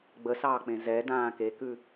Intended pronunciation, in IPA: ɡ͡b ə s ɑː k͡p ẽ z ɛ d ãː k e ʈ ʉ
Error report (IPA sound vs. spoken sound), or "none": ʈ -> k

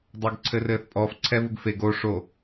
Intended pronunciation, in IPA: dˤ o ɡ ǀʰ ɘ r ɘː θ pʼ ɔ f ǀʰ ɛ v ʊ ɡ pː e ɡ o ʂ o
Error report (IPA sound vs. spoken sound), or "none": pː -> f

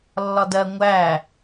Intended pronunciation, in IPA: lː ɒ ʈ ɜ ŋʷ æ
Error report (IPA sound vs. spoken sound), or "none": ʈ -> d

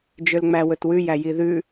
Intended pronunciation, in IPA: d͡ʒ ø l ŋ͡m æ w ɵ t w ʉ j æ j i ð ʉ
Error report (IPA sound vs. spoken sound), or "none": none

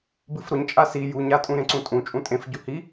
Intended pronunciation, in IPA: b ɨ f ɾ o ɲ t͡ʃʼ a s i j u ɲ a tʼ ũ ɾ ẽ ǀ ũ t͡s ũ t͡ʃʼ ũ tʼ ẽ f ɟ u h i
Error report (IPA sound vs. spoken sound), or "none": t͡s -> tʼ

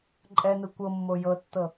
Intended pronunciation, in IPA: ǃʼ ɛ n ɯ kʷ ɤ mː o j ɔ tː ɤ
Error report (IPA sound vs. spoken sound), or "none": ɔ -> ɤ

